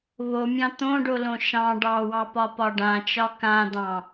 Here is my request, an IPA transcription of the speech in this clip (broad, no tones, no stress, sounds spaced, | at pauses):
β o mʲ ɑ̃ t̪ õ ɖ o l õ ʃ ɑ̃ ɖ ɑ w ɑ p ɒ p ɒ ɖ ã t͡ʃ ɒ k ã d̪ ɑ̃